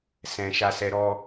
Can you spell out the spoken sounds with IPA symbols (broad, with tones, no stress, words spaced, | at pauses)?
sɛ̃˨ʃa˧sɛ˧ ɾɔ˧